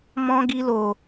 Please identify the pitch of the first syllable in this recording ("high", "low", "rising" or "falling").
high